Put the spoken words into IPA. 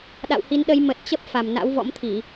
ɗ a̰˧˨ w h i˨˦ n ɗ ə˨˦ j m ə˨˩ t̚ t͡ɕ ə˦˥ p̚ f a˨˩ m n a̰˧˥ w v ɔ̰˧˥ m t̪ʰ i˧˩˨

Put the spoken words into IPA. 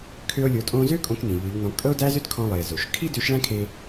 kʰ ø˧ o̯ lʲ o˩˧ tʼ õ˧ z ø˥ kʼ õ˧ k n ĩ˩ ʎ ø˩˧ ʎ n ɔ̃˩˧ kʼ ɤ˥ o̯ d æ˥ z ø˥ d kʰ ɔ̃˧ lˠ i˩ e̯ z o˩ ʃ kʰ i˥ d ø˧˥ ʃ ɭ æ̃˥ kʰ e˧

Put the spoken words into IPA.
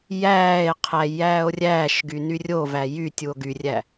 j æː e̯ qʰ æ j æː o̯ rʲ æː ʃ ɡ y n y rʲ o v æ j y tʲ u o̯ ɡ y rʲ æ

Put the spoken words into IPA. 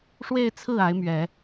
ʂ w e˥˧ ɪ̯ t͡sʰ ɹ̩˥˩ a˧˥ ɪ̯ m ɥ ɛ˨˩˦

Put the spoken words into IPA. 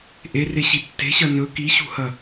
ʔ e r e ɕ i tː e̤ ɕ ɐ n ɵ k i ɕ ṳ h ɐ

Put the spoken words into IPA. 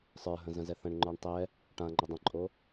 sˤ ə˞ ɦ ə̃ z ə̃ z ɛ θ ə̃ ɳ ŋ͡ǃ ə˞ ɳ tˤ ɛ | ʈ ã ŋ͡ǃ ə dˤ ə̃ ǃʼ o

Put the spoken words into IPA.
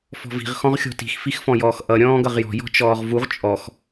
f ɔ̤ v i̤ ʁ x ɔ̃ ʁ xʲ ɔ̤ t i̤ x f i x f ɔ̃ j ɔː x ʔ ʌ ɾʲ ɔ̃ː ɡ ʌ ʁ j ɔ̤ j ɔ̤ t͡ʃ ɔː ʁ v u ʁ t͡ʃʼ ɔ x

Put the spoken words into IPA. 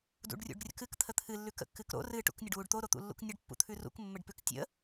d ṵ ɖ rʲ ṵ ɖ rʲ ə̰ k ɨ k t̪ʰ ə t̪ʰ ɨ lː ʉ k ə̰ kː ɨ k ɾ o̰ r ɨ ʈ ṵ k nʲ ə ɖ w u ɖ t̪ o ɾ o t̪ ṵ lː ṵ k nʲ ə ɖ pː ṵ t̪ʰ ʉ r ṵ k mː ə ɖ p ʉ k tʲ ə̰

